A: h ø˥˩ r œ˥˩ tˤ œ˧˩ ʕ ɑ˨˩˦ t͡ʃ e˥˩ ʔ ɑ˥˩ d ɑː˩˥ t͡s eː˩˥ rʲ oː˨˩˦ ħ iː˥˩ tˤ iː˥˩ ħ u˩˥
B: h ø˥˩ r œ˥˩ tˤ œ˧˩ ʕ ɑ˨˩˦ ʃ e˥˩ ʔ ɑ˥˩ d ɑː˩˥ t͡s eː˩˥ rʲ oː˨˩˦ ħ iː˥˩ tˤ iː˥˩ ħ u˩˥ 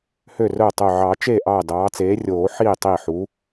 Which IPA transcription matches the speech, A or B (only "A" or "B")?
A